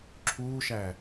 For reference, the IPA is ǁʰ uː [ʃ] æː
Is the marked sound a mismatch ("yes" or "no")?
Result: no